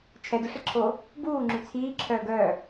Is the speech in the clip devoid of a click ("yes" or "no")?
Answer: no